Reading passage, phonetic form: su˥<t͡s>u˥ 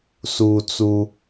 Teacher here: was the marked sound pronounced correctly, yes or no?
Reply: yes